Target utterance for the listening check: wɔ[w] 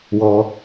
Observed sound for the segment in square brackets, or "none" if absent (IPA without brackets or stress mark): none